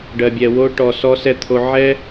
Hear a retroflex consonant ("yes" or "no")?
yes